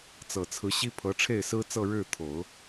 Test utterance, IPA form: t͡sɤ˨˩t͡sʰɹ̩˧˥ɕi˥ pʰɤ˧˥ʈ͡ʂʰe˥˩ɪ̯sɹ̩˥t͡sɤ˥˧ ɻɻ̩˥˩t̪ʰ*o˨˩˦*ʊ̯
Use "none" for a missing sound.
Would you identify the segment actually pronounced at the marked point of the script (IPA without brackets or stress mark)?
o˨˩˦